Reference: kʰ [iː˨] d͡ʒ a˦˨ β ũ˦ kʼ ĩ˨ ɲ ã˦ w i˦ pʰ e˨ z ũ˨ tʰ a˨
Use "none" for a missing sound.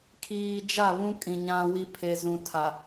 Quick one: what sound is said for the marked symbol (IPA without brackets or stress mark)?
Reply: iː˨